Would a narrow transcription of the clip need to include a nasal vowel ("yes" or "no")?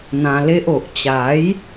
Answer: yes